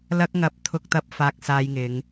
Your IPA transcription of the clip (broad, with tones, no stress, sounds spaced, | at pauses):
l ɐ˥ k̚ ŋ ɐ˧ p̚ t̪ʰ ʊ˧ k̚ t̪ ɐ˧ p̚ f aː˧ k̚ s aː˧ j ŋ ɪ˨˧ ŋ